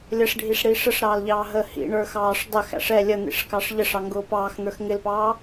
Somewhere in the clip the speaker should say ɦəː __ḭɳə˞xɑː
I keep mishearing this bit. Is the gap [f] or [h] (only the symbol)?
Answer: h